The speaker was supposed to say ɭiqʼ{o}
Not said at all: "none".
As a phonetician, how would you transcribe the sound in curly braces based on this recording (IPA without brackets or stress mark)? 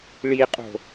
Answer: o̤